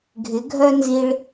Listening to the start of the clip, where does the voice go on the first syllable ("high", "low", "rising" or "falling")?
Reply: rising